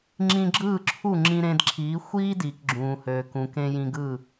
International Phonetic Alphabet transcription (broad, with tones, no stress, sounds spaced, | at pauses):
ŋ͡ǁ ĩ˧ ɡ͡ǁ ɯː˥˩ ǁʰ u˥˩ ŋ͡ǁ ĩ˧ ɾ ẽ˧ d ǁʰ iː˩˥ xʷ iː˥ d iː˩ k ɡ͡ǁ ũː˩ h øː˩ k ũ˩ k ẽ˧ j ĩ˧ ɡ ɯː˥˩